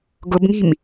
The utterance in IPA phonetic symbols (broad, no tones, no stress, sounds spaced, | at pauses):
ɡ ʊ b ŋ i̤ m